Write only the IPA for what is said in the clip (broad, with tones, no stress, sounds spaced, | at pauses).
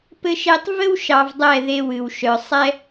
p ɘ˦ ʃ e˦ tˤ v ɘ˦ w ʃ ɑ˧ v dˤ ɛ˦˨ ð e˧ w ɨ˨ w ʃ œ˨ sˤ ɛ˦